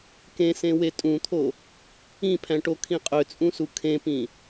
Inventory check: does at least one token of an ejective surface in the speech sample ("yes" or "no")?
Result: yes